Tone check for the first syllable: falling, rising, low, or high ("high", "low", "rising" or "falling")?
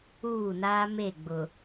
falling